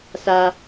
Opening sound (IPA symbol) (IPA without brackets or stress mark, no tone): s